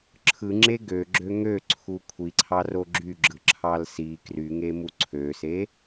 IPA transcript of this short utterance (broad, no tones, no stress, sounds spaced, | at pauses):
ǁʰ ɯ ŋ͡ǁ e ɡ ø ɡ͡ǁ ø ŋ ø ǀʰ u kʷʰ i ǀʰ ɑ r o ɡ͡ǁ y ɡ͡ǁ ɯ ǁʰ ɑ l s i k r y ŋ e m u ǀʰ ø s e